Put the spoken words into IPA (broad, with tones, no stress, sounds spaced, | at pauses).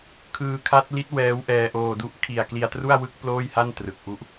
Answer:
kʰ ɯː˧ kʰ a˦˥ t̚ l i˦˥ t̚ w ɛː˦˥ w ʔ ɛː˧ ʔ oː˧ d u˦˥ ʔ kʰ i˨˩ a̯ k l i˧ a̯ t r u˥˩ a̯ w ɯ˦˥ k̚ p l oː˥˩ j h a˥˩ n t r ɯ˨˩ k̚ ʔ u˥˩ ʔ